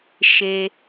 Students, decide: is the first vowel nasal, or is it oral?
oral